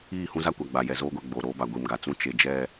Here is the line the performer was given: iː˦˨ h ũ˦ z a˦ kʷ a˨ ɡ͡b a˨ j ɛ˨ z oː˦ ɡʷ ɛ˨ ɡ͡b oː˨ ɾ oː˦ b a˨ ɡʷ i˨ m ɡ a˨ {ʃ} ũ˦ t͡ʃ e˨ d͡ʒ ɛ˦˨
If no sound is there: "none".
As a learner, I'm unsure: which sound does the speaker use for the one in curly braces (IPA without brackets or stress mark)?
t͡s